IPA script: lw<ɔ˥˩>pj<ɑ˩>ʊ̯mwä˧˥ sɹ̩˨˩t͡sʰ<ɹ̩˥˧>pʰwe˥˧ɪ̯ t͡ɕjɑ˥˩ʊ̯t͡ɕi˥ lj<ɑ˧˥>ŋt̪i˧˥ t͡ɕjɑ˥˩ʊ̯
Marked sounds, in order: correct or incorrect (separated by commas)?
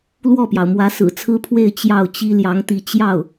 correct, correct, incorrect, correct